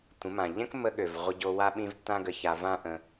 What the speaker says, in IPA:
tʷ ə̃˨˦ m ã˨ ʎ ɛ̃˦ k mː ə˧ ɠ ø˨ v ʁʷ ə˧ ɟ o˧ w a˦ ɓ ĩ˦ v tː ã˦ ɡ ə˧ ç a˧ v ã˦ ʔ ə̃˧

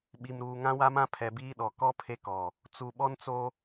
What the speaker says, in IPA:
ɓ i˨ m ɾ uː˨ ŋ ã˦ w a˦ m ã˦ pʰ ɛ˨ b iː˦ ɗ ɔ˨ k ɔ˦ pʰ e˦ k ɔ˨ | t͡s u˨ ɓ ɔ˦ n t͡s o˦

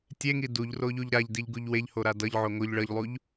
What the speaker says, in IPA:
tʲ e ŋ i d u ʎ r o ʎ u ʎ ɾ a ʎ d i ʎ ɡ u ʎ w e ʎ h o ɾ a d ʌ ʎ ʕ o ŋ o ʎ ɭ ʌ ʎ lˠ u ʎ

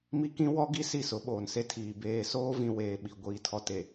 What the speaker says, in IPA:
m i˦ k ĩ˦ w ɔ˦ ɡ i˦ s i˦˨ s ʊ˨˦ ɓ oː˨ n s e˦ tʰ iː˨ b eː˨ s oː˦ v ĩ˨ w eː˨ ɓ i˨ ɡʷ iː˨ tʰ ɔ˨ t e˨

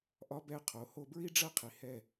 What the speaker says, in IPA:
ʔ ɒ˦ b ɛ˦ qʰ o˨˦ h o˦ b ɹ i˦ ɖ͡ʐ ɐ˦ qʰ i˨ h ɛ˦˨

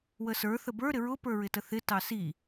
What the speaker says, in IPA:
w ə s ə˞ θ ə b ə˞ ɾ ɪ ɹ ʊ p ə˞ ɹ ɪ t ə θ ɪ t ɑ s i

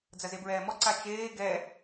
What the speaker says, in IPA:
d͡z ɐ z e b ɹ ɛː m ɔ ǀ a t͡ʃ eː ɡ ɛ

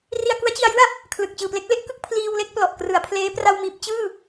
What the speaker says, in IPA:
r i˧ a̯ k u˦˥ a̯ t͡ɕ i˧ a̯ j ɯ˥˩ a̯ | kʰ l ɯ˨˩ k̚ t͡ɕ ɯː˨˩ p l e˦˥ k̚ l e˥˩ ʔ k ɯ˥˩ k̚ pʰ l iː˧ w l e˥˩ k̚ p l ɔ˨˩ ʔ k r ɯ˩˦ a̯ pʰ l eː˦˥ p r a˧ w m iː˨˩ p̚ t͡ɕ ɯː˥˩

